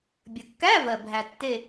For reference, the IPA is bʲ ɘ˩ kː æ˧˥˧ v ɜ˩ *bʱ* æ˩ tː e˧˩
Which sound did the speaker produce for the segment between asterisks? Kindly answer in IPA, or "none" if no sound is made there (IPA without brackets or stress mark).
bʱ